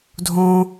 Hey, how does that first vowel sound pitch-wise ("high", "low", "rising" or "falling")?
high